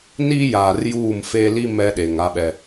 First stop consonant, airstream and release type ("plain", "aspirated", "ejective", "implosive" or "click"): implosive